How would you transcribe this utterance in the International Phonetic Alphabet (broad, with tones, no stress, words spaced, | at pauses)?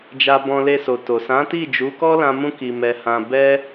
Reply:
d͡ʒa˧bɔ̃˧le˧ so˨to˨sã˨˦ti˦˨ d͡ʒu˨˦kɔ˦lã˧ mũ˦ki˧ mɛ˧hã˧ bɛ˦